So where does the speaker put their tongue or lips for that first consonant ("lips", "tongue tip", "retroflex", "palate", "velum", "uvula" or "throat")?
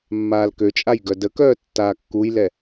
lips